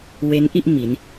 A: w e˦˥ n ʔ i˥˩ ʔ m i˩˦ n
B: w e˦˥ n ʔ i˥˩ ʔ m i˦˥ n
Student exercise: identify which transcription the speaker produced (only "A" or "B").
B